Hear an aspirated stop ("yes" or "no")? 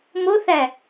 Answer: no